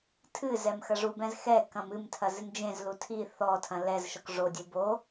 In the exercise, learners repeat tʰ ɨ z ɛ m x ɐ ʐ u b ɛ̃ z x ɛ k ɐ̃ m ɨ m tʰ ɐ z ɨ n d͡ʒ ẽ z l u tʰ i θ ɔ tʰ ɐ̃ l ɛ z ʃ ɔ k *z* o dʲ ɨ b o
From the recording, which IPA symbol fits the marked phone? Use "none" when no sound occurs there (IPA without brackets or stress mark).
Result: ʐ